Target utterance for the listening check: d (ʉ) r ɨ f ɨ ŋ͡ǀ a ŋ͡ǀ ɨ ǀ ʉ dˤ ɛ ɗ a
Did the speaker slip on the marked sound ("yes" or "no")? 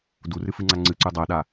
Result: yes